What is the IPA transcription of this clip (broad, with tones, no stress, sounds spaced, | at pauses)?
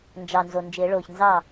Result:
n d͡ʒ ɑ˩ n z o˩ n d͡ʒ ɪː˨˩˦ ɭ oː˩ ç n z ɑ˥˩